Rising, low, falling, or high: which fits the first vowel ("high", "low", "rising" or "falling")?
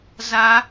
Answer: high